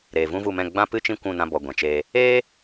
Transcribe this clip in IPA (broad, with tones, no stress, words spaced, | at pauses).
ɾeː˨vũ˦vu˦˨mɛ̃˦˨ ɡ͡bã˦ pɨ˦t͡ʃĩ˦ kʷũ˦˨nã˧ bɔ˨ ɡʷɛ̃˨t͡ʃeː˧ | eː˦